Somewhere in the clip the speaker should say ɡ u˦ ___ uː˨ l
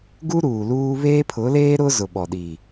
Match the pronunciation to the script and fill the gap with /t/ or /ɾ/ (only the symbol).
ɾ